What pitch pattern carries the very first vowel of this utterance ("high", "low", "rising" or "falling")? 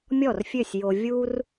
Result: falling